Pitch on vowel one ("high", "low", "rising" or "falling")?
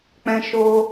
high